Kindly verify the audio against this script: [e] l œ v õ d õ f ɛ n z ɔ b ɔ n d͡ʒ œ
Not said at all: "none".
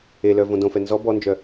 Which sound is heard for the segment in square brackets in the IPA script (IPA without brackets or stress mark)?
e